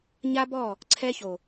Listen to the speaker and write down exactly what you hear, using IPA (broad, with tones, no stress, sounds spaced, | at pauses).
ɲ a˦ b ɔ˦˨ | ǀʰ ɛ˧ ç o˨